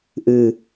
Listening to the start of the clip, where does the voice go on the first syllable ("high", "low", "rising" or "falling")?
low